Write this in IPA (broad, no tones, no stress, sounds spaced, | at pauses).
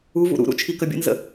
u v ṵ ɾ ṵ ɾ ṵ t͡ʃʰ i k ə bʲ ə̰ n z ə̰